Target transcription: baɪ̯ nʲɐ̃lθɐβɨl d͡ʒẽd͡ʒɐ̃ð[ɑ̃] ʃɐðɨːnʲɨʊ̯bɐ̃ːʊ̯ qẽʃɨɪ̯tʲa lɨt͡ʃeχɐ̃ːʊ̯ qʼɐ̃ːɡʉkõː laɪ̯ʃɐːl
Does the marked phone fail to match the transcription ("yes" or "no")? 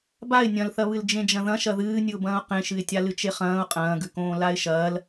yes